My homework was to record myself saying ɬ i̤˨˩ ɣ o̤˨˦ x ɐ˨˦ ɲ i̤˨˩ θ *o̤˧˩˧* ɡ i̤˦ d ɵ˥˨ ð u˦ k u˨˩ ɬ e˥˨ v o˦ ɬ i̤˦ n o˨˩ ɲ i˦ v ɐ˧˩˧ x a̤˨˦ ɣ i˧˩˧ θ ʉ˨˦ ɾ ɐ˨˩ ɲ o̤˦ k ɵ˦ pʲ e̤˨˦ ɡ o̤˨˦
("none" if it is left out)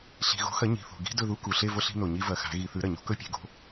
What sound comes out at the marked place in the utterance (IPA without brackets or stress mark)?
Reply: o̤˨˩